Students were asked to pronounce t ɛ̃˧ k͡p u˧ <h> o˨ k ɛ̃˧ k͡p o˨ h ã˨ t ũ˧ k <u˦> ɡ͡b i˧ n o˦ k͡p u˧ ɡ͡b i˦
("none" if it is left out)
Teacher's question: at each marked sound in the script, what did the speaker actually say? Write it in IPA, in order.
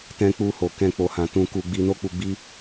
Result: h, u˧

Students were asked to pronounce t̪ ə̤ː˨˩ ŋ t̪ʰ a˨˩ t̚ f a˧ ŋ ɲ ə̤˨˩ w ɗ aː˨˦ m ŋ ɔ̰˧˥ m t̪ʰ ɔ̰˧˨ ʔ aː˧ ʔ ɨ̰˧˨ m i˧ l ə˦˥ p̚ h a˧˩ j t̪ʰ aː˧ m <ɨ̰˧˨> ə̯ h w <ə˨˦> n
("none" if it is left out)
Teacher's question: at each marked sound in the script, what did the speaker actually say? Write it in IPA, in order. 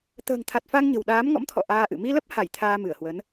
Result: ɨ˧˩, ə˨˦

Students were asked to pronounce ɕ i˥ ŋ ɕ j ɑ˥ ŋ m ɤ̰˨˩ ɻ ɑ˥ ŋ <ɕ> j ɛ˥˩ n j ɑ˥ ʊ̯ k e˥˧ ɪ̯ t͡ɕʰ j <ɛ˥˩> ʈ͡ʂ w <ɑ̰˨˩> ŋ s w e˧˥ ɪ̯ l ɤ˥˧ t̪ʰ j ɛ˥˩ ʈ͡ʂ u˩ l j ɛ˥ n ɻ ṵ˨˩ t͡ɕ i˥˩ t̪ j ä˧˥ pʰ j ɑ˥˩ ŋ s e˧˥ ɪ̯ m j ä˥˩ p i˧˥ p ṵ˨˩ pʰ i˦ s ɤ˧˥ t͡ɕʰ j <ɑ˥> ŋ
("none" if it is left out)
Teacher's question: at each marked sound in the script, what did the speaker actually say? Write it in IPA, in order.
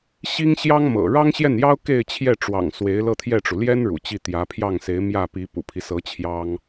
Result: ɕ, ɛ˥˩, ɑ̰˨˩, ɑ˥

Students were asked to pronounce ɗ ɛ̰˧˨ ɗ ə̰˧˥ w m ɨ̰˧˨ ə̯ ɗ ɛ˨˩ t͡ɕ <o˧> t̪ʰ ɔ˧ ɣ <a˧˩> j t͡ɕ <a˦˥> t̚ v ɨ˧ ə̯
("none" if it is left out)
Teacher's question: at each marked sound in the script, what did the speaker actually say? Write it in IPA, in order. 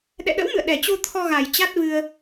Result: o˧, a˨˩, a˦˥

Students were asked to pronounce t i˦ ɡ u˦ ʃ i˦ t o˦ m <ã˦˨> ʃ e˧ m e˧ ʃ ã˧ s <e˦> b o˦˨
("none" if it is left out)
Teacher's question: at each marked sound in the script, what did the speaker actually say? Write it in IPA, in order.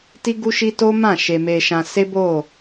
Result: ã˦˨, e˦

